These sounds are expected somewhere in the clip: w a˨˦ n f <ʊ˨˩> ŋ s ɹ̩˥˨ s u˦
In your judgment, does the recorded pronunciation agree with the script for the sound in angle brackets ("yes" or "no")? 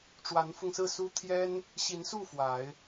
no